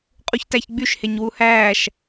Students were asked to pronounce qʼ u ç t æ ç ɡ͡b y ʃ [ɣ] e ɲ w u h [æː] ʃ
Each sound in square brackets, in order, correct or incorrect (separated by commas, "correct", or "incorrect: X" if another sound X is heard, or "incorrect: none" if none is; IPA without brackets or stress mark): incorrect: h, correct